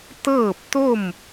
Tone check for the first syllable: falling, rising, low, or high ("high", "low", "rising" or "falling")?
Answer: falling